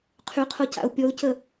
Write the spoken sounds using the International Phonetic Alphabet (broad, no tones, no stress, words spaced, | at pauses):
qʰyqʰoca̰ʊ̯ pʲɔʊ̯cə